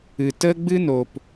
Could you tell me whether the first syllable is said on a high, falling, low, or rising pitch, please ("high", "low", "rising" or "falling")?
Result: low